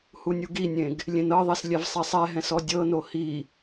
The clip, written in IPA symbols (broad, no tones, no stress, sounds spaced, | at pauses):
h u nʲ u ɡ i nʲ ẽ ɡ | lʲ ẽ n ɤ ðˤ e s lʲ ɛ v sˤ ɛ sˤ ɛ ɦ ɛ̃ s ɔ dʲ ɤ n o h i